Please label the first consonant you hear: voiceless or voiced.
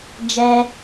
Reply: voiced